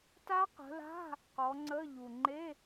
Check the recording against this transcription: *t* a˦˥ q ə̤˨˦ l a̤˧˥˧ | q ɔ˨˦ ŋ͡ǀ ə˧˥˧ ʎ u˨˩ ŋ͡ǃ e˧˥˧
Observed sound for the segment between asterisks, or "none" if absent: t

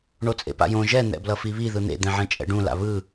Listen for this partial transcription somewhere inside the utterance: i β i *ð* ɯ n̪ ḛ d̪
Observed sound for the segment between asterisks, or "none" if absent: ð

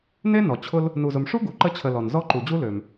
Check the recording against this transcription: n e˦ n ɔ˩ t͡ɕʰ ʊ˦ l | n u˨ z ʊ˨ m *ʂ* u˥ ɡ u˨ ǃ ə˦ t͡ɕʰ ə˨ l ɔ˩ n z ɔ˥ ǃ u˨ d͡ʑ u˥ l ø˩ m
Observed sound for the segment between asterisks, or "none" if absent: ʂ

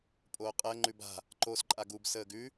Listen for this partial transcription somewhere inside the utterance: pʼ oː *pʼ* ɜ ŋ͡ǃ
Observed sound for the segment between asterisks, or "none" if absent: qʼ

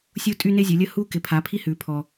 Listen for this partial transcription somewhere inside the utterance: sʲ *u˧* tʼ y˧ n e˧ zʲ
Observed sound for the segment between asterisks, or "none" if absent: u˧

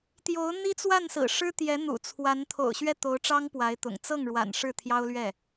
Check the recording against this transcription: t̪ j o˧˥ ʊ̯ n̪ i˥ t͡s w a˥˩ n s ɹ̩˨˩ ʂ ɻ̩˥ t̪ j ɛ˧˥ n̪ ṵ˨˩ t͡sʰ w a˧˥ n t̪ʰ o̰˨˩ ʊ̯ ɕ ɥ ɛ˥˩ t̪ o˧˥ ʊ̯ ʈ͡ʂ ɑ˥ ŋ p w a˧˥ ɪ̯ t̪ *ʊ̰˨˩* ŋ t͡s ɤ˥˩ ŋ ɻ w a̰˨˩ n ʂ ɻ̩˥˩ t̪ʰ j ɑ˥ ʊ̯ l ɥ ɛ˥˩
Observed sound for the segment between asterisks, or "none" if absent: ʊ̰˨˩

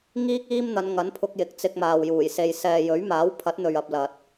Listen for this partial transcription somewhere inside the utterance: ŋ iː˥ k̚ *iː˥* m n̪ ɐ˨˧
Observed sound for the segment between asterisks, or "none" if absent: iː˥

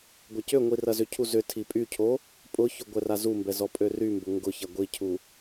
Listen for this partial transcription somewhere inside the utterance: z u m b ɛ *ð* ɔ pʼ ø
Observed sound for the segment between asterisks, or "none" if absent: z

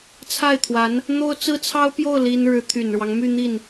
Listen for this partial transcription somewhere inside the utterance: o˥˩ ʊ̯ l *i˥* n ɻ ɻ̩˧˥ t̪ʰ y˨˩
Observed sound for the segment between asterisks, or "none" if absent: i˥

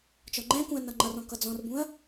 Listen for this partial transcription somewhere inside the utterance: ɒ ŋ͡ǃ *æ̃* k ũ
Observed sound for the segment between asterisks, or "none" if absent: æ̃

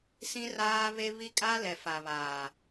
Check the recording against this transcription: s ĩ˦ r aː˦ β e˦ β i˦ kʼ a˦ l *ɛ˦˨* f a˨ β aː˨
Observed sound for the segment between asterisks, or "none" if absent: ɛ˨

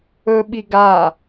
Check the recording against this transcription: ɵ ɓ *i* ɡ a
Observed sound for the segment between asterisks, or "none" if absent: i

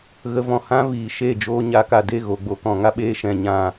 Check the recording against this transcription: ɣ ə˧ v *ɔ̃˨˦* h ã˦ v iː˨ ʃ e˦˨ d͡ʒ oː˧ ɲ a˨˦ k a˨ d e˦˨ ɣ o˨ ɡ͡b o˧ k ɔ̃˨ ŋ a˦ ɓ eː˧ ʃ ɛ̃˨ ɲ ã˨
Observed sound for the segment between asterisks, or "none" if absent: ɔ̃˨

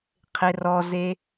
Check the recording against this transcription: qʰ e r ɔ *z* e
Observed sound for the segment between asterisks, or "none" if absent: z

